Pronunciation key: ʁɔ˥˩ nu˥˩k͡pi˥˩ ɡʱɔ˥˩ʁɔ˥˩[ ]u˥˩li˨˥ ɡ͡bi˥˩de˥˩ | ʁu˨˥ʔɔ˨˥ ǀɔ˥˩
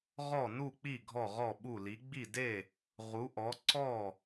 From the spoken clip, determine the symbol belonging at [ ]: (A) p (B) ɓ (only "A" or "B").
B